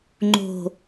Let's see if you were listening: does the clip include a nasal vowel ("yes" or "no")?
no